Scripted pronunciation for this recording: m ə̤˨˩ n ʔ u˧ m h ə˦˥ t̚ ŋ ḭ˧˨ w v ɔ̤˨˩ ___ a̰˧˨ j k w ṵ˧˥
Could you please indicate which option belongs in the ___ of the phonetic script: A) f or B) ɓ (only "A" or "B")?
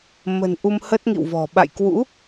B